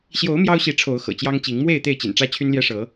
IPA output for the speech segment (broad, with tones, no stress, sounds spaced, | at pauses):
ɕ j o˨˦ ʊ̯ m j ɑ˦ ʊ̯ ɕ i˨˦ ʈ͡ʂʰ o˨˦ ʊ̯ x ɤ̰˨˩ t͡ɕ j ɑ˦ ŋ t͡ɕ i˨˦ ŋ m w e˥˨ ɪ̯ t̪ e˥˨ ɪ̯ t͡ɕ ḭ˨˩ n ʈ͡ʂ ä˦ t͡ɕʰ y˦ n l j ɛ˦ ʂ ɤ˨˦